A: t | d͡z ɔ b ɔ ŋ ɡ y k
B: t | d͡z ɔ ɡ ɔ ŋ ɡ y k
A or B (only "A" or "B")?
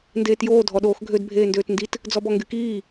A